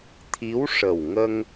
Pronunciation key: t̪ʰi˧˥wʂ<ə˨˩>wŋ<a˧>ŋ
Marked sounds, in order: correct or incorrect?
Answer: correct, incorrect

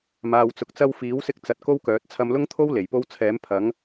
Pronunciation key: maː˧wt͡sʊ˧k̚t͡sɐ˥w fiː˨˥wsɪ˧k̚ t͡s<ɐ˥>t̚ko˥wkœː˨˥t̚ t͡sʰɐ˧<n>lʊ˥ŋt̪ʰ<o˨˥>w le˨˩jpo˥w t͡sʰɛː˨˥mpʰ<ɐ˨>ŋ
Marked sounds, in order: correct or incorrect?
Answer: incorrect, incorrect, incorrect, incorrect

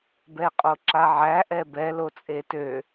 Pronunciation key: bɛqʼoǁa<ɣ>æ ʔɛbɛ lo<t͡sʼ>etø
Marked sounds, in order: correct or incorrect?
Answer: incorrect, correct

